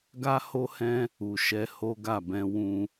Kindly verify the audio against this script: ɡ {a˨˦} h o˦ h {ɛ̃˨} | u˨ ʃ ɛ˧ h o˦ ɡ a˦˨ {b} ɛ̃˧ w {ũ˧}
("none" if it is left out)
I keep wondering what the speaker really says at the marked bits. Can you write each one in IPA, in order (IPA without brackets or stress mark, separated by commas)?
a˦, ɛ̃˦, b, ũ˧